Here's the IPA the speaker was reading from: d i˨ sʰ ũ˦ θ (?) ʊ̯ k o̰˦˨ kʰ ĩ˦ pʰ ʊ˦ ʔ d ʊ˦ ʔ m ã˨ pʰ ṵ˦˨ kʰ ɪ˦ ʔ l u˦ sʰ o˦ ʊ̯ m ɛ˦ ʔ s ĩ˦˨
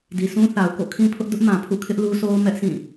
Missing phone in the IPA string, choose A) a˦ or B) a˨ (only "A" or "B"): B